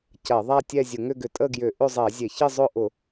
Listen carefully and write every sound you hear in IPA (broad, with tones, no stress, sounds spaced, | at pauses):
c ɐ˧˩˧ ðˤ a˥˧ tʲ ɛ˥˧ zʲ ʊ˧˩˧ ŋ ʏ˥˧ ɡ ʏ˧˩˧ tʼ ə˥˧ ɡ j ʏ˧˩˧ ʔ ʏ˥˧ zˤ ɛ˧˩˧ zʲ e˧˩˧ ç ɪ˥˧ zˤ ʊ˥˧ ʔ ʊ˧˩˧